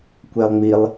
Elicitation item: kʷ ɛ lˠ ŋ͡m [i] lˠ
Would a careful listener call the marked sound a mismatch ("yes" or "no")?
no